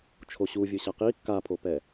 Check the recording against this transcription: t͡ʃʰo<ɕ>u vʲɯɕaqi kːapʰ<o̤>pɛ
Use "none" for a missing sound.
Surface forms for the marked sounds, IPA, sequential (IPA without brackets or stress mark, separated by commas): ɕ, o